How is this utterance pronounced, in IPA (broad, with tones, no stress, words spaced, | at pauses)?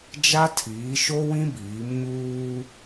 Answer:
d͡ʒa˦tʰiː˨˦ʃo˦ wĩ˦biː˨˦m ɲuː˦